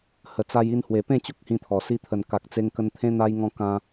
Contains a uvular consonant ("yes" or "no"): no